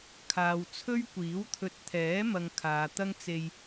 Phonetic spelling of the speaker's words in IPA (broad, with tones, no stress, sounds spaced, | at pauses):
kʰ aː˨ w t͡sʰ ɵ˥ ɥ kʷ iː˨˥ w t̪ʰ ɵ˨ t̚ t̪ʰ ɛː˨˥ m ɐ˨ ŋ kʰ aː˨ t̪ ɐ˥ ŋ t͡s e˧ j